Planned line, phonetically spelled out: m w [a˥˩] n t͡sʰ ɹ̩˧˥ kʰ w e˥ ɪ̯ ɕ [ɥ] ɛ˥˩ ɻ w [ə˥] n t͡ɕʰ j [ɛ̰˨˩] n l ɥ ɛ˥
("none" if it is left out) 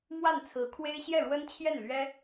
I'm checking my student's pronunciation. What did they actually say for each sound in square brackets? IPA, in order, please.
a˥˩, j, ə˥, ɛ˥˩

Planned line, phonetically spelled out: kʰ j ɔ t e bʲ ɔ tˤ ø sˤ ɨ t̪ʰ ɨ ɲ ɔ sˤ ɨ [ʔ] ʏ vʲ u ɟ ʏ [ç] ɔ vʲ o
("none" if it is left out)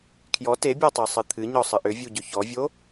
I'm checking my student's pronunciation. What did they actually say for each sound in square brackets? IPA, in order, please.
ʔ, ç

